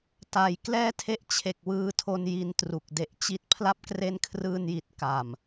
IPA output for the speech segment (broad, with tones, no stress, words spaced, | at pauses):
ta˩˦jklɛː˥˩ tʰe˥˩ʔt͡ɕʰe˨˩k̚wɯː˧tʰo˧n ji˧ntru˨˩k̚de˦˥ʔ t͡ɕi˥˩t̚ pʰla˦˥p̚kre˦˥nkʰrɯː˧nji˨˩t̚ ka˨˩m